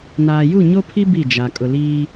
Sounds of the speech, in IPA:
naː˨ju˦˨ɲo˦pʰi˦ bi˦˨d͡ʒa˨ kʼʊ˨liː˦

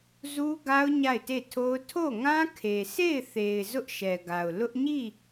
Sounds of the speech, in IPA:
zu˦ɡa˦ʊ̯ ɲa˦˨ɪ̯te˦˨tʰo˦ʊ̯ tʰo˦˨ŋã˦kʰe˨ sʰe˦˨ɪ̯θe˨ɪ̯ zʊ˦ʔʃɛ˨ɡa˨ʊ̯ lʊ˦ʔ ɲi˦˨

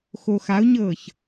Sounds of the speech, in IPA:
xoxaʊ̯ɲɤːç

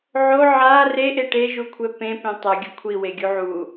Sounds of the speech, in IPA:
ʕo ʕa reʔe ʈeʒukʷʰɛ pẽpẽ tˤʌɡʲʌ kʷʰiweɡʲu ʕu

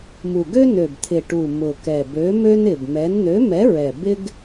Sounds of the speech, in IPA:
mu˨˩ɡø˥nø˨˩b t̪ʰɪ˨˩ ʈu˨˩ mʊ˨˩kɛ˨˩ bø˨˥mø˥nɪ˨˩bmɛ˨˥n n̪ø˨˥mɛ˨˥ɹɛ˨˩ bɪ˥ɡ

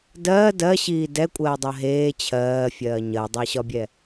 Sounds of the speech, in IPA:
dɜː dɜɕiː dɛkʷʼɜːdˤɜ ɦeː t͡ɕʰɜːfʲɜː ɲɜdˤeɕɒbʲɛ

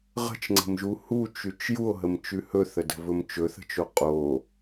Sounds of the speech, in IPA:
ʁə̤t͡ʃŋ͡ǀə̤mʒu hut͡ʃʉt͡ʃ juo̯ɦəmt͡ʃʉ hɵθədə̤vɵm t͡ʃɵθə̤t͡ʃo qʼo

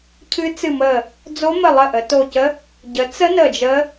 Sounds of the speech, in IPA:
cʰɨ˦˥t͡sɨ˦˨mə˦˨ | d͡zo˦˥mə˦˨lˠə˦˨ ʔə˨˦to˦˨ cə˦˥ | ɟə˨˦t͡sə˦˥ nə˦˨d͡ʒə˦˥

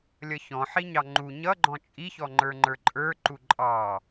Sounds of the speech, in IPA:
lʲʌçɔ̃ħiɲɑ ŋ͡ǃu ɲʌɡ͡ǃɔ̃ t͡ʃʼiçɔŋ͡ǃə˞ ŋ͡ǃə˞ǃʼə˞ǃu ǃʼɑ

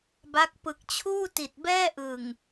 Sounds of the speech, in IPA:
ba˦˥k̚ pɯ˨˩k̚t͡ɕʰuː˥˩ ti˨˩t̚bɛː˥˩ʔɯ˨˩ŋ

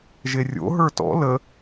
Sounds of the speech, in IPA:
ʒerʲo̰ ɦə˞tɔ̰ lə

